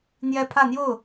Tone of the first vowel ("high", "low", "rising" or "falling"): high